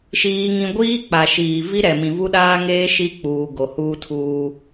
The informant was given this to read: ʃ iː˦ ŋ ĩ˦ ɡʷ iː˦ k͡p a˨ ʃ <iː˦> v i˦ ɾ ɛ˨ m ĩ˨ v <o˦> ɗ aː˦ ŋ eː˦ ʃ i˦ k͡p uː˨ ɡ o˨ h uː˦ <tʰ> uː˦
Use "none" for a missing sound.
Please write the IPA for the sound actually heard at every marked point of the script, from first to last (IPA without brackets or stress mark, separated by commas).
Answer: iː˨, u˦, tʰ